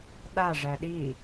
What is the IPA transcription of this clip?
ɗaʐæ ɗi

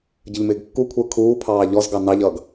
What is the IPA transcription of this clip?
ɟəʎmɪːɡkːukʷʰəː kʰuːpʰɑː ʎɔzɡɑ nɑʎʌːɡ

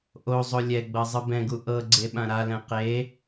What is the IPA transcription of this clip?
ʔo zˤolʲɛɡ͡bɤ zˤɯbɛ̃ɡu ʔɤ ɡ͡ǀeɓãɾalɛ̃ qe

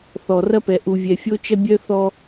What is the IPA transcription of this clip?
θɔ˨ rɐ˦pɛ˨ ʔu˨vʲɛ˨fʲo˦t͡ʃɐ˦ bʲœ˦θɔ˦

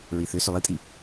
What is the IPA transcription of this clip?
ɹiθʏ sʏlˠitʼi

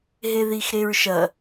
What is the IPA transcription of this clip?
ɦeðixɾeɹʃɐ

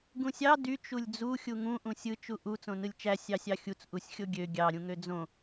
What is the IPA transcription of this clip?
ɡũsʲɑ dy t͡ʃulʲd͡zu xʲuŋũ ʔũsʲɯ t͡ʃuʔu t͡sõnɯlʲt͡ʃæ sʲɑsʲɑxʲut͡s ʔusʲxʲoɡʲø ɡʲɑ ɾʲũŋød͡zõ

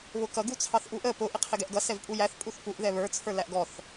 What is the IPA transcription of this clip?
βʊkʌ ɡut͡sʰɑθʔuʔə pʊ ʔɪqʰɪɡɛʔɡʌ sɛvpʼujæθ pʼuθpuʔ ðɛβə˞ t͡sʰə˞læʔɡɔθ

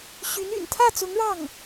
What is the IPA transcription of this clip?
ɕy˧˥ny̰˨˩n t̪ʰä˥˩t͡sʊ˧˥ŋ ɻɑ˥˩ŋ

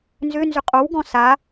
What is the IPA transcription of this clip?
nzʏnzʏ qʼowɡɔ̃ sa

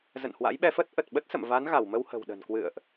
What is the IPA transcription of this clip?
zə̰˧˨nhwa̰˧˥jɓɛ˧fə˦˥t̚ ʔə˨˩t̚ɓə˦˥t̚ sə̰˧˨mva˨˦n ɣa˧˩wmə˧whə̤˨˩wɗə̤˨˩n kwɨ̰˧˨ə̯ʔ

